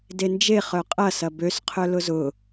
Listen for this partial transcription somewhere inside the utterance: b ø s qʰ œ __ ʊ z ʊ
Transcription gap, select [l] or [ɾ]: l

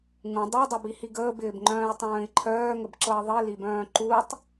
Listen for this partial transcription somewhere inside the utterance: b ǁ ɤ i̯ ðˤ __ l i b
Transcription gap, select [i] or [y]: i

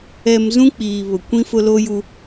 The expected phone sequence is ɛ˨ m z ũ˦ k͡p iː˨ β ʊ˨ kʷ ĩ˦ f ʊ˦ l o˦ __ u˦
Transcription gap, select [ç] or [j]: j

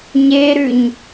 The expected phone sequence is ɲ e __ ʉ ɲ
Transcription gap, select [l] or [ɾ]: ɾ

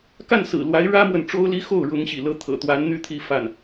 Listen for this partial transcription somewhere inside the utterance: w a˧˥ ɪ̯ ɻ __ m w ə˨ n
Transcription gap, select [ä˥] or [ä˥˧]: ä˥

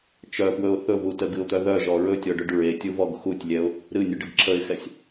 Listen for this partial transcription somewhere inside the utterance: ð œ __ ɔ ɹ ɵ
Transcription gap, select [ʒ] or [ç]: ʒ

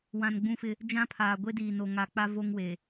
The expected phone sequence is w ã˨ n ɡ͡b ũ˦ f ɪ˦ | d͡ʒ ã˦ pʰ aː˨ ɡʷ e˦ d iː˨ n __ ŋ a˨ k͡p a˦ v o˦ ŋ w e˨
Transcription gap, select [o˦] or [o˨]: o˨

